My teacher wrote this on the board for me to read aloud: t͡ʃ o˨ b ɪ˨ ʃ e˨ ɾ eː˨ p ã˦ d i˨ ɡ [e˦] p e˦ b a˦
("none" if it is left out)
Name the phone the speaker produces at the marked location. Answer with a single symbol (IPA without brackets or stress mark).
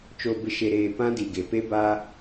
e˨